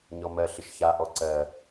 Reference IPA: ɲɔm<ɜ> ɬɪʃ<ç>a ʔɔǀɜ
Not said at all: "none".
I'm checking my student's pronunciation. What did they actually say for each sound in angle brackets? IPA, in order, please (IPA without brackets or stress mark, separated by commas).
ɜ, ç